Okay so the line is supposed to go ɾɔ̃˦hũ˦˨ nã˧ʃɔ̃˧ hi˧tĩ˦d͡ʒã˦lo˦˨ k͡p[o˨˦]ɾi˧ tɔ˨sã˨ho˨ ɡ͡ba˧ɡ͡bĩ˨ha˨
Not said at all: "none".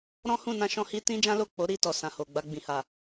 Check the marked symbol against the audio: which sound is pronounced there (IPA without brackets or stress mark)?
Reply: o˨˦